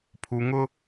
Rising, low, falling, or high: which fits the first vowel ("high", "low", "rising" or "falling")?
low